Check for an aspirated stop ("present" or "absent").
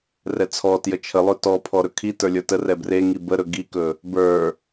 present